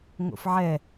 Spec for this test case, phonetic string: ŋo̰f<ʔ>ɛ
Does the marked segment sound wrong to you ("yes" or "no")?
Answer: yes